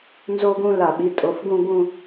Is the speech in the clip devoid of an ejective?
no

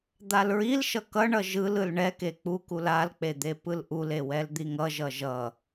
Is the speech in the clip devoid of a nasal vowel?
yes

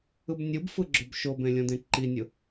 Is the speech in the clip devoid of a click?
no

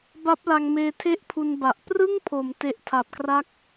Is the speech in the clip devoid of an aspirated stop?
no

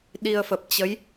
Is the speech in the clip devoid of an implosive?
no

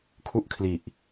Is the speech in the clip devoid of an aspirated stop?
no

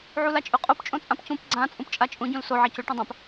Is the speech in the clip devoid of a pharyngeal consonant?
no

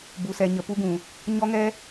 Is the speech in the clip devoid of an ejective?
yes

